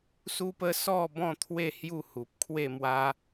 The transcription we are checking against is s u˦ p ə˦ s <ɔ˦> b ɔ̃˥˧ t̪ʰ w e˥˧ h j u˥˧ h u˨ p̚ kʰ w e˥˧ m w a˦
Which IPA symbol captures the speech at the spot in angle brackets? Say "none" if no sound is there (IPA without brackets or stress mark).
ɔ˥˧